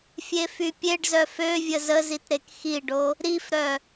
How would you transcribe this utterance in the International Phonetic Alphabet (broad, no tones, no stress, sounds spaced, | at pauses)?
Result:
fʲ e f y pʲ e ɖ z œ f ø vʲ ə z ə z i t ɾ e k x i ɖ o | ɾ i f ɾ œ